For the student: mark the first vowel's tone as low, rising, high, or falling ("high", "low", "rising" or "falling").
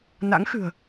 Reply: rising